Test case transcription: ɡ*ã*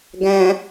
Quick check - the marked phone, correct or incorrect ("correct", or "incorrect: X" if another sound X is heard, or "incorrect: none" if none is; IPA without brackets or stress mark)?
incorrect: æ̃